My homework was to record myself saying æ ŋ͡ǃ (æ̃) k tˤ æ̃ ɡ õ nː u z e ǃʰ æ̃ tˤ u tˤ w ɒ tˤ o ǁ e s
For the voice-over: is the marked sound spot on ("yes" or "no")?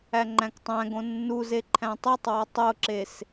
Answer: yes